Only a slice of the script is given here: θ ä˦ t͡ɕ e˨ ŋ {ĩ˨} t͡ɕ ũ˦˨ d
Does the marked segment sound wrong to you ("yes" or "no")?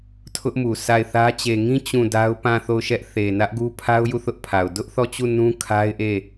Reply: yes